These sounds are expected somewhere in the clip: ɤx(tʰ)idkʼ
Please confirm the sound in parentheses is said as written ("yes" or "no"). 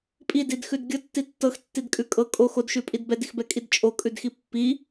no